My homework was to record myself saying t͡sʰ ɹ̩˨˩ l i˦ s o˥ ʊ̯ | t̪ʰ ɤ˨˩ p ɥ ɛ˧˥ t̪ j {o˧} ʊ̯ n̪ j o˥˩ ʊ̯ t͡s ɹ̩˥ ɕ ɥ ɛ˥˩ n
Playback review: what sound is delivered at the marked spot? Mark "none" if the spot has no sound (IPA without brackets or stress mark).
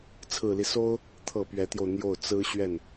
o˧